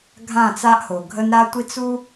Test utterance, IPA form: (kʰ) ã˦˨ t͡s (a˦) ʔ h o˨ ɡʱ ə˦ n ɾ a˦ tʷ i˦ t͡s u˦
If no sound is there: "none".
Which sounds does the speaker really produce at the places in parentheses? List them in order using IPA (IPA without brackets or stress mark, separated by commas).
ɡʱ, a˦